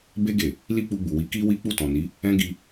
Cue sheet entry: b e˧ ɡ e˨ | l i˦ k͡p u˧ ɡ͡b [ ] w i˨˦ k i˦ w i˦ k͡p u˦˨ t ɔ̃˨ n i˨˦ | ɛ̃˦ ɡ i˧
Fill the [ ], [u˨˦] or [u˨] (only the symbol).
u˨